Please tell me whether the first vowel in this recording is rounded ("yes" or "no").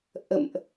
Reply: no